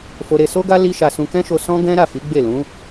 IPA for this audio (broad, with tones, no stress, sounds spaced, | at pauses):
f o˧ ɾ e˧ s o˦ ɡ a˦ l i˦ ʃ a˧ s ũ˧ k ɛ̃˦ ʃ o˧ s ɔ̃˦ ɡ ɛ̃˦ ɾ a˦˨ f i˨˦ ɡ͡b e˦˨ l ũ˨˦